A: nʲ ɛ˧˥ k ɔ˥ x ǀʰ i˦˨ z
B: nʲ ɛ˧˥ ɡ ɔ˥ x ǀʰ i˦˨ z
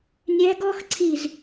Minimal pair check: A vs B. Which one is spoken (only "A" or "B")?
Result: B